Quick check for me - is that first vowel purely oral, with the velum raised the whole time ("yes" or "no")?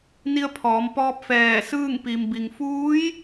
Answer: yes